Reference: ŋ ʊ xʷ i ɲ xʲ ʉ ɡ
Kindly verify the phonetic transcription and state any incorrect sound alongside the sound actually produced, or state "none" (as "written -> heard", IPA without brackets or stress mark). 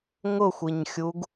ʉ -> u